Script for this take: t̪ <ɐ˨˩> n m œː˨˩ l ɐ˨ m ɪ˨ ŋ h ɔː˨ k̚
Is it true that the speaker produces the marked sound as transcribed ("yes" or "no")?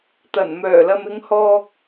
yes